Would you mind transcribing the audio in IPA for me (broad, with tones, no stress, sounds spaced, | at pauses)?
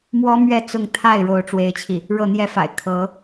m w ɔ˥ m ɥ ɛ˥˧ t͡s ʊ˥˧ ŋ t̪ʰ a˥˩ ɪ̯ ɻ o˥ ʊ̯ ʈ͡ʂ w e˥ ɪ̯ t͡ɕʰ i˥˩ | ɻ ɤ˥˩ n̪ j ɛ˥ f a̰˨˩ ɪ̯ kʰ ɤ˧˥